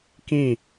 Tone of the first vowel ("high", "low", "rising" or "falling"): falling